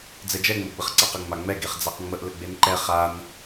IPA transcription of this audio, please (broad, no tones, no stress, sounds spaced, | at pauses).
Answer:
d͡z ɛ d͡ʒ ɛ ŋ͡m ə ɡ͡b ə χ ǀ a q ə ŋ͡m a ŋ͡m ɛ ɡ e χ d͡z a q ŋ͡m ə ʔ l ə ɡ͡b e n ǃ ɛ χ a n